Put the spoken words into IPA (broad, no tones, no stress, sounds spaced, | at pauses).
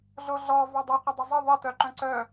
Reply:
ɮ o ɮ ɔ v ɑ dˤ œ qʷ ə dˤ ə zˤ ə ðˤ ə t œ ǃ œ̃ ǀ œ